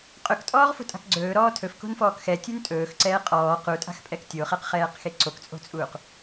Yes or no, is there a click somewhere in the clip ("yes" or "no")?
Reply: yes